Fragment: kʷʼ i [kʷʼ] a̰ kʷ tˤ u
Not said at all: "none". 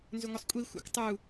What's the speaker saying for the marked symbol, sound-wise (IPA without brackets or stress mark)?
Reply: xʷ